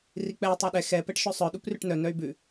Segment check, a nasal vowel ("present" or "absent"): absent